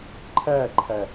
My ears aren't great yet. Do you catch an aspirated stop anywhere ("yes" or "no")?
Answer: yes